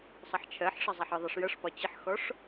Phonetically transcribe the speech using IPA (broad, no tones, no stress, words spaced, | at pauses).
sˤʌħt͡ʃʰɜħʂʌ zˤɛħɪðˤʌʂ jʌʂpɒ t͡ɕɪħxɔʂ